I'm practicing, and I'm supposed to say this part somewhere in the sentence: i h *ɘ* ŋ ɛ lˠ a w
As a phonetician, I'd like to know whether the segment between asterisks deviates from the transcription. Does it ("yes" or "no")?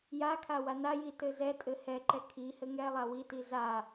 no